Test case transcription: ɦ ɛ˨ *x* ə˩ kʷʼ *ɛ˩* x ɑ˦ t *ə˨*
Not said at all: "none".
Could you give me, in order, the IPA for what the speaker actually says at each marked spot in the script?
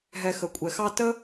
x, ɛ˩, ə˥

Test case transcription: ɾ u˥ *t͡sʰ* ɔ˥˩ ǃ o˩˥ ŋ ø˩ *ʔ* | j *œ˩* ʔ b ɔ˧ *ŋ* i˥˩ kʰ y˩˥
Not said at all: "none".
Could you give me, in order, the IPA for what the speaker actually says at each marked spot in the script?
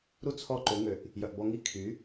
t͡sʰ, ʔ, œ˩, ŋ

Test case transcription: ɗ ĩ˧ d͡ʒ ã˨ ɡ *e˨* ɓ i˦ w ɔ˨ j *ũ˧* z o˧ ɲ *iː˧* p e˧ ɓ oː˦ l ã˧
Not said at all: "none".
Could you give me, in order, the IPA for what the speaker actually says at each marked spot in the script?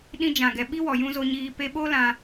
ɛ˨, ũ˧, iː˧

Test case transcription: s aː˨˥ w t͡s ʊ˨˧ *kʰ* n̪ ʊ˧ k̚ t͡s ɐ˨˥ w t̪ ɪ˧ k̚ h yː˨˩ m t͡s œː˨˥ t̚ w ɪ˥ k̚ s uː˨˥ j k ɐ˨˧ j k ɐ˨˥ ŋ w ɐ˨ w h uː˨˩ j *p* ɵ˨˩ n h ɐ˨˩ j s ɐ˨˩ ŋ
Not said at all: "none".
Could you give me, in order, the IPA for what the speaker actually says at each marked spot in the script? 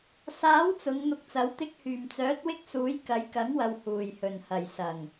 ŋ, h

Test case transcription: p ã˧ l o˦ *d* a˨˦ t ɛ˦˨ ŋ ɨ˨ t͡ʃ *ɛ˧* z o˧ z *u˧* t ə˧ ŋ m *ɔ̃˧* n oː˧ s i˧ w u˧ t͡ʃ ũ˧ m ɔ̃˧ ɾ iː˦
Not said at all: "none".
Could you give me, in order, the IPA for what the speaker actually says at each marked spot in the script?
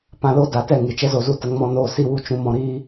d, ɛ˦, u˦, ɔ̃˧

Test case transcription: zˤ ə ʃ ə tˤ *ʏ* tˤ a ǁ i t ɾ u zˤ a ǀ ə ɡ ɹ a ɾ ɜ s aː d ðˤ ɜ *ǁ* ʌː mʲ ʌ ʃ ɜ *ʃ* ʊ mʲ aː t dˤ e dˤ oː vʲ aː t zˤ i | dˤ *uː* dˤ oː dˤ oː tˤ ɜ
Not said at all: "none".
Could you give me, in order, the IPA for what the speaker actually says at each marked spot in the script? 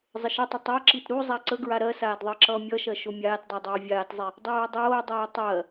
ʏ, ǁ, ʃ, oː

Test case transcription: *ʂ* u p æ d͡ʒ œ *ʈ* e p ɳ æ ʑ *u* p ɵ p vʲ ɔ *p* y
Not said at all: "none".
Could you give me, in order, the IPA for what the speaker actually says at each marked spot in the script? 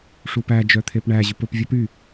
ʂ, t̪ʰ, ʉ, p

